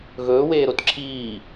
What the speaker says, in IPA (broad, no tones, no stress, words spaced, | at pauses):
ɣɵːweːɾot ǁʰiː